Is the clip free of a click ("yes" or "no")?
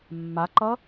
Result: no